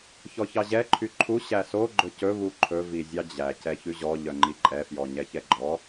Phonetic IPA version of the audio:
çɔçɑʑɛ ǃʰyǃʰu ɕæso ɡ͡ǃɵcɵ βuǃʰɵ vizʲɑd͡ʑæ cɛçʉʑɔ ʎœŋ͡ǃiǃʼɛ fjɔɲɛçɛɡ͡ǃɔ

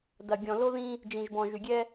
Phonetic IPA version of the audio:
dɐ˨ ɡʲɔ̃˨lo˦ ðĩ˦ | d͡ʒĩ˨ʒbɔ̃˨ʒy˨ɡʲɛ˦

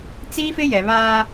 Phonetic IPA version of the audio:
t͡siː˦fɪ˦jɛ˨ βaː˦

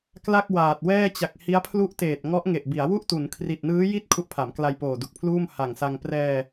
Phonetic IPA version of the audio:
kla˥˩k̚waː˨˩t̚wɛː˥˩ t͡ɕa˨˩k̚hi˦˥a̯pʰlu˦˥ʔteː˨˩t̚ ŋɔ˦˥ʔŋe˨˩ʔbi˩˦a̯ wu˥˩ʔtu˩˦n kʰri˨˩t̚nɯː˦˥ji˥˩t̚ kʰu˦˥ʔpʰa˩˦mkla˧j poː˨˩du˨˩k̚pʰluː˥˩m ha˨˩ŋsa˧ŋ prɛː˧

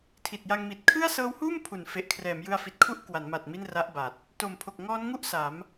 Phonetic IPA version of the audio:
tʰi˨˩t̚ja˧ŋmi˨˩t̚ kʰɯ˥˩a̯ sɤː˦˥whuː˥˩mpʰu˩˦n fe˨˩ʔkʰrɛː˩˦mjɯ˧a̯ fi˨˩t̚kʰu˥˩ʔkwa˩˦nma˨˩t̚ mi˥˩nra˦˥ʔba˨˩t̚ | to˨˩mpʰo˨˩k̚ŋɔː˦˥nŋu˥˩ʔ sa˩˦m

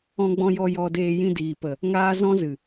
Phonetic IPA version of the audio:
ɔ̃˧ɡ͡bɔ̃˧jɔ˧ jɔ˧deː˧ jĩ˧diː˨pə˨ | ŋaː˦ zɔ̃˦zɨ˨

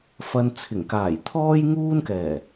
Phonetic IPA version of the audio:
fɐ˧nt͡sʰɪ˨˩ŋ kaː˨˩jt̪ʰɔː˥jŋuː˥nkɛː˨˩

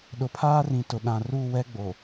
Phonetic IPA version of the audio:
ɗʊ˨pʰaː˦rĩ˨ tʊ˨ ɗã˨ruː˦˨wɛ˦ ɡ͡bo˨

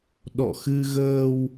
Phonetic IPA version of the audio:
ɗɔ̰˧˨xɨ˧ɣəː˧w

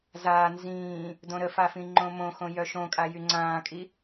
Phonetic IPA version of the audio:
zaː nzĩː | dõɾəfa fĩŋ͡ǃõmõxõ jœʃõkʼa jyŋ͡ǀãːkʼi

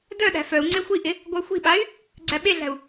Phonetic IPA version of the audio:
dœɗæ̤ fœu̯ ŋ͡ǀexʷiʔɪ | ɡʷœxʷi̤ɓay̯ | ɡ͡ǀæɓeɮæ̤u̯

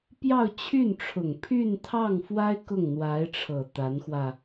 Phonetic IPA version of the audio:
pjɑ˥˧ʊ̯t͡ɕʰy˥˩nʈ͡ʂʰʊ˨˩ŋpʰy˥˧n t̪ʰɑ˥˩ŋfwa˥ɪ̯ kʊ˥˩ŋn̪wa˧˥ɪ̯ʈ͡ʂʰɤ˨˩ t̪a˧˥nxwä˧

